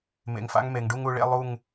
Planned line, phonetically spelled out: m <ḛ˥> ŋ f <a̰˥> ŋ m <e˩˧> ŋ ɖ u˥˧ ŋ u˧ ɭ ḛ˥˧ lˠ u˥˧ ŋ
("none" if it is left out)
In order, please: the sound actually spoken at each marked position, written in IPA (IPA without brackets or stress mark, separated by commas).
ḛ˧, a̰˥, e˩˧